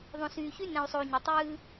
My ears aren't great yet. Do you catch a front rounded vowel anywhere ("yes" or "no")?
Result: yes